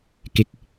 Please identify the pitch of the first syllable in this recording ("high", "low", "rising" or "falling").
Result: rising